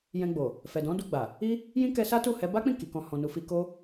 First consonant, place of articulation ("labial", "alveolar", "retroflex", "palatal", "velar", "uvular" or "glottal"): palatal